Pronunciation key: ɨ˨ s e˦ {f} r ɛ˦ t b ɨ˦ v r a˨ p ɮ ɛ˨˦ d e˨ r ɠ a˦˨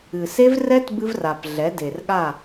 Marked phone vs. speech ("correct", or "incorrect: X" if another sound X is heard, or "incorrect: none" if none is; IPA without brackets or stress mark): incorrect: v